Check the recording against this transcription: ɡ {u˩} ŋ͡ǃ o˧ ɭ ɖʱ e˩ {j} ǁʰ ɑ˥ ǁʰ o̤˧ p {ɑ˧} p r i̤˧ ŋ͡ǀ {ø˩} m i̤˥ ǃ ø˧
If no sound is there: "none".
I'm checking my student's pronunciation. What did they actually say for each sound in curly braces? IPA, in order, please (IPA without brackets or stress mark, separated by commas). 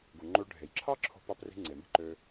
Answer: u˩, j, ɑ˧, e˩